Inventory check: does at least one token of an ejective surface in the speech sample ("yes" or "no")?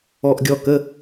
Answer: no